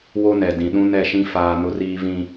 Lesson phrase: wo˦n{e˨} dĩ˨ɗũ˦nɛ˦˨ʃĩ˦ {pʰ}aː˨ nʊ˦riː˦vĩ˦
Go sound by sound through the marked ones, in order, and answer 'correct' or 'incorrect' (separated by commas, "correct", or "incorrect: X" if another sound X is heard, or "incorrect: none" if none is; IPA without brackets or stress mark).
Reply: incorrect: ɛ˨, incorrect: f